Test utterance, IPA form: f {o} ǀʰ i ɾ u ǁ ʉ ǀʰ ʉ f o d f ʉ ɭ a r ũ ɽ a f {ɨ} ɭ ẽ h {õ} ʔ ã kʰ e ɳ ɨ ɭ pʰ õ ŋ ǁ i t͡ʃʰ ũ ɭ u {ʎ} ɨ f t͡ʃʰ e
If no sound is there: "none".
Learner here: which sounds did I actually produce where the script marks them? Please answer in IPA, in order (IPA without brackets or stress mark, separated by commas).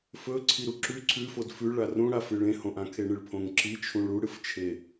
ɵ, ɨ, õ, ɽ